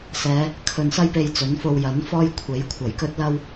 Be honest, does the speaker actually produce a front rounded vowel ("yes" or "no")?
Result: no